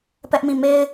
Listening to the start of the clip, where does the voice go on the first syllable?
high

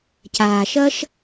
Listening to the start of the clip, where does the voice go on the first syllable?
low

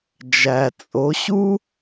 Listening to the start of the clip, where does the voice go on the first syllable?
low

